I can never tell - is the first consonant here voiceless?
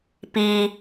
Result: yes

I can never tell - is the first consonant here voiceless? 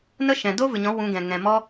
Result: no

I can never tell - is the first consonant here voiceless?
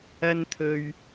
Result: no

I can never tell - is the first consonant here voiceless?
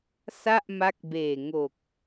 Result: yes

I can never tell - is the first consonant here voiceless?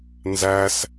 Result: no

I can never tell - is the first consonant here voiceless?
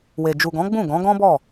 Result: no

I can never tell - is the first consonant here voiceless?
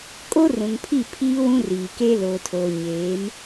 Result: yes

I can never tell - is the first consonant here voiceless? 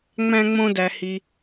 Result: no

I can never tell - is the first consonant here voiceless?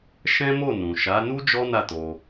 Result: yes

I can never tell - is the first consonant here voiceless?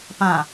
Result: yes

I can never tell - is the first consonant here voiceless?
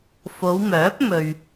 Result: yes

